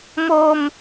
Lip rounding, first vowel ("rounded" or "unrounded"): rounded